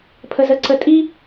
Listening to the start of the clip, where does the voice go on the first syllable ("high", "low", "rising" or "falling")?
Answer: high